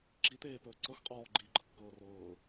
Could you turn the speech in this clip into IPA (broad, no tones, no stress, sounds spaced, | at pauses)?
ǁ i t̪ eː p ɵː ǀ ɤ x qʼ ɔː ɡ͡ǃ iː ɡ͡ǃ ɤ kː ɤː r ɤː